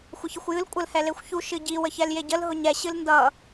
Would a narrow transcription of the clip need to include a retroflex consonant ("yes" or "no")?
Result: no